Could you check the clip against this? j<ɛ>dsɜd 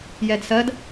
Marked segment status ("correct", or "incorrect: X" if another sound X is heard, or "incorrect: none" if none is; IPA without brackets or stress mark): correct